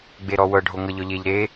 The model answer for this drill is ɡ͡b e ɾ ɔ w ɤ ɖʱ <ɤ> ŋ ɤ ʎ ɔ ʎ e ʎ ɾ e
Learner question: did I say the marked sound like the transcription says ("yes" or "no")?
no